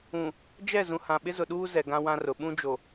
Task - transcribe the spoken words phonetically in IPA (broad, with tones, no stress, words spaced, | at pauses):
ũ˨ | d͡ʒɛ˦˨zũ˨hã˨ ɓɪ˦zʊ˨ɗuː˦ zɛ˨ɡã˦ wã˦rʊ˨ ɓũ˦d͡ʒo˨